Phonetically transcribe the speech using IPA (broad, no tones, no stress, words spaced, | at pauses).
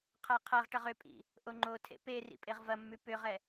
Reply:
qʰaqʰɐʁʈɐʁ ʏpʼḭ | ʔoŋ͡ǃotʰḛ pe rḭpʼeʁvɐmːʉ pʏʁɛ